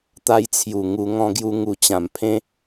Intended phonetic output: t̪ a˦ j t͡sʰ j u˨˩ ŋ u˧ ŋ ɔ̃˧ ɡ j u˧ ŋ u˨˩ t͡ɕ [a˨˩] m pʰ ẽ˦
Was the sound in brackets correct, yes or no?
no